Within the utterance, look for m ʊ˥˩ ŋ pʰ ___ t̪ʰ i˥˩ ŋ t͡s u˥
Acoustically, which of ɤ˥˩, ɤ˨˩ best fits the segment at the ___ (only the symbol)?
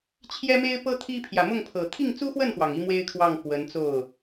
ɤ˨˩